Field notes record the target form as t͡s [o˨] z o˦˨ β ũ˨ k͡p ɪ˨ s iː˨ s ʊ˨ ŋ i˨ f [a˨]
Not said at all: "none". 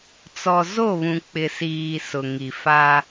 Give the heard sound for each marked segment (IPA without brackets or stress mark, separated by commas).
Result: ɔ˨, a˦